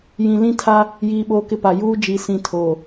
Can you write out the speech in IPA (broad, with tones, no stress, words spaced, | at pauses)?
jĩ˨lĩ˦tʰa˦ | jiː˦ɓoː˦kɪ˦pa˨ juː˦d͡ʒi˨ sĩ˨ tʰoː˨